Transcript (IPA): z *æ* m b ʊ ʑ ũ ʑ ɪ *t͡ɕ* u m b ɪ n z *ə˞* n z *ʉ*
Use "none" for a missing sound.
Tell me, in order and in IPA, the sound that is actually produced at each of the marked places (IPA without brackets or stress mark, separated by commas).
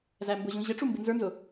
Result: æ, ʈ͡ʂ, ə˞, ʊ